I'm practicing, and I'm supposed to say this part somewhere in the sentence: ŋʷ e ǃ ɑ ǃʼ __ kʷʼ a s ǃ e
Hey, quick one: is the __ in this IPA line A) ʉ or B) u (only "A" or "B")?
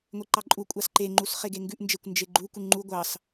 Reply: B